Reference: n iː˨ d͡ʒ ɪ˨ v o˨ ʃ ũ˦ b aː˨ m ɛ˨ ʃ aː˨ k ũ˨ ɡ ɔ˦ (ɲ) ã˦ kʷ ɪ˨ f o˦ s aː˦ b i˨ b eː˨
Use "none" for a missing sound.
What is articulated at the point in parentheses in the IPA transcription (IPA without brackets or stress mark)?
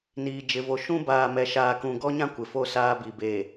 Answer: ɲ